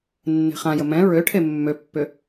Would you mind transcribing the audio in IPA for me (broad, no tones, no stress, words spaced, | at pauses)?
nːe̤χãjə mɛ̃ ɹøʈʰe mːøpːʏ